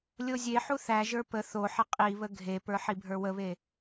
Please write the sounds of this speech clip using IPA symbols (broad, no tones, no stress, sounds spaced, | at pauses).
lʲ o zʲ e ħ u θ æ ʒ ə˞ p ə θ o ħ ə qʼ i β ə ɡʱ e p ə˞ ħ i bʱ ə˞ w ə β e